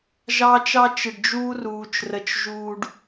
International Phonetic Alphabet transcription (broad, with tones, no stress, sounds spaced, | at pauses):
ʒ ɑː˦ t͡ʃ ɑ˦ t͡ʃ ɪ˨ ɖ d͡ʒ uː˦ r uː˨ t͡ʃ r ə˨ t͡ʃ ʒ uː˨ ɖ